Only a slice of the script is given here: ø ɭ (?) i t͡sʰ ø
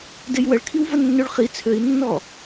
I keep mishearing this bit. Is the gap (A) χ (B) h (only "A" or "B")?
A